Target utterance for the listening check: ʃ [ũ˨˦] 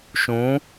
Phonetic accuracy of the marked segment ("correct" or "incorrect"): correct